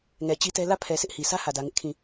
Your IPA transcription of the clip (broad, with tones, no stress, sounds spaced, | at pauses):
ŋ ɛ˨ t͡ɕ i˦ t ɛ˦ l ä˦˨ pʰ ɛ˨ sʰ ɪ˦ ʔ h i˨ s ä˦ h ä˨ d ä˨ ŋ ɪ˦ ʔ kʰ ĩ˦˨